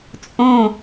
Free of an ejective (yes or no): no